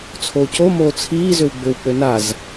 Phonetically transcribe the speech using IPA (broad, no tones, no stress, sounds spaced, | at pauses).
t͡sʰ oː c o m oː t͡sʰ iː z ʏ w ɡ͡b ʏ w k͡p ø n a z